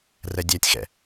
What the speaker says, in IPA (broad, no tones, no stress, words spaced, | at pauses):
rɛdʲætʲxɛ̰